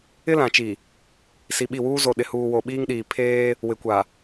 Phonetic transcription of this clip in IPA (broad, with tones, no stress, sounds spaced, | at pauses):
ɪ˦ l ã˨ t͡ʃ i˨ | s i˨ ɓ i˦˨ w uː˦ z o˨ ɗ ɪ˨ h uː˨ w o˨ ɓ iː˦ ŋ ɗ iː˨ pʰ eː˦ | w ɪ˨ kʷ a˨